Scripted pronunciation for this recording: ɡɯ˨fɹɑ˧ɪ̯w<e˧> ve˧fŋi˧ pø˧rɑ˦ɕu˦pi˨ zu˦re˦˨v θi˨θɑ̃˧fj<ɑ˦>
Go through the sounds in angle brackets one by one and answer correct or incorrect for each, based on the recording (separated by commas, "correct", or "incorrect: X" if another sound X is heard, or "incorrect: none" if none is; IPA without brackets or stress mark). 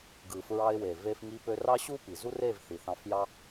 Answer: incorrect: e˨, correct